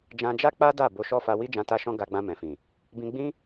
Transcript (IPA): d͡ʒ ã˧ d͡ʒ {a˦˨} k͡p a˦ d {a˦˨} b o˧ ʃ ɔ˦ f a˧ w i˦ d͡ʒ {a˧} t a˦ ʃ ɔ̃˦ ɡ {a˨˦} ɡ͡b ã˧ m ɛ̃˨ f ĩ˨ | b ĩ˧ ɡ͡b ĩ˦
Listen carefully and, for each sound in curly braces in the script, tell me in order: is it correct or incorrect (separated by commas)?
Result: incorrect, correct, incorrect, incorrect